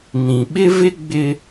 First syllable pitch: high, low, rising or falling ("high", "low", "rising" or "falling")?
low